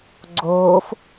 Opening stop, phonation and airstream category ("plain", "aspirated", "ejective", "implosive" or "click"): click